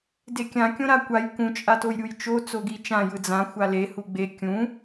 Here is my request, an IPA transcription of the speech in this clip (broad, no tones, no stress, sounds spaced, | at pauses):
d e kʲ ã kʲ õ ɾ a kʷ a j k ũ t͡ʃʼ a t o j ɾʲ u j t͡ʃ o t͡s o ɡ i t͡ʃ ã j ɯ d͡z ã xʷ a l e h u ɡ͡b e kʲ ũ